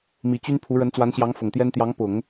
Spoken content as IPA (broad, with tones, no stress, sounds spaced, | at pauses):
m i˧˥ t͡ɕ y˥ n pʰ u˧˥ ɻ ə˧˥ n t͡s w a˧˥ n ɕ j ɑ˧˥ ŋ f ʊ˨˩ ŋ t̪ j ɛ˥ n t̪ j ɑ˧˥ ŋ p ʊ˨˩˦ ŋ